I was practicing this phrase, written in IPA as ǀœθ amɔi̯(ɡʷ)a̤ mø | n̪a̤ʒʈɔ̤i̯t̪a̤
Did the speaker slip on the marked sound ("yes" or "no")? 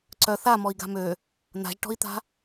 yes